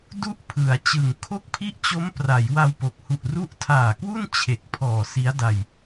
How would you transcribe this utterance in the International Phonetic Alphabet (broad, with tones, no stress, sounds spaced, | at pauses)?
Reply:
d u˥˩ ʔ pʰ ɯ˩˦ a̯ t͡ɕ ɯ˨˩ ŋ kʰ o˥˩ k̚ pʰ i˥˩ ʔ t͡ɕ o˦˥ m p r a˩˦ j w a˧ w p o˨˩ k̚ h u˨˩ ʔ r u˦˥ ʔ tʰ aː˨˩ k w u˥˩ n t͡ɕʰ e˨˩ k̚ pʰ ɔː˨˩ s i˦˥ a̯ d a˧ j